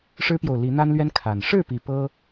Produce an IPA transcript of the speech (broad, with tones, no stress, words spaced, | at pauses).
ʂɻ̩˦pjo˨ʊ̯li˨˦ n̪a˦nlɥɛ˦n kʰa˨˩n ʂɻ̩˥˨pi˨˩ pɤ˦